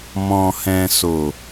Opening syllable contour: low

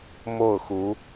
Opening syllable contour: falling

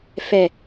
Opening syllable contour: low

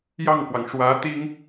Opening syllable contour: falling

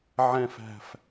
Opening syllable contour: low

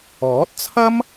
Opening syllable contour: rising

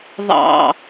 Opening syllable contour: low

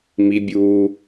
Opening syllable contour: high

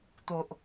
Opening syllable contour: low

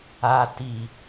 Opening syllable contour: low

